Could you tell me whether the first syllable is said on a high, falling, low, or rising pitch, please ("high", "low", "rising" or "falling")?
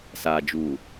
low